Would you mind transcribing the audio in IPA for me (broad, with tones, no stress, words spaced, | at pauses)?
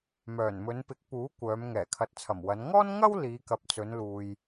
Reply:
mœː˨˩nmɵ˨˧npɪ˨˥k̚puː˨˥ kʷœː˨˧m ŋɛː˨˩kʰɐ˨t̚t͡sʰɐ˨˩mwɐ˨˧n ŋɔː˥nŋɐ˥w liː˨˧kɐ˨p̚t͡sɵ˨˧nluː˨j